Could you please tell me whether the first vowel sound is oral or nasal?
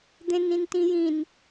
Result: nasal